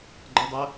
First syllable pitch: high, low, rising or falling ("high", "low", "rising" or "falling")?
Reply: high